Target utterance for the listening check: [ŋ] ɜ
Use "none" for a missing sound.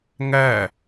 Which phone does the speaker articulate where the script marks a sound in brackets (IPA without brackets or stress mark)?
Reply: ŋ